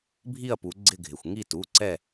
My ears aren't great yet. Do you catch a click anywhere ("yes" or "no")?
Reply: yes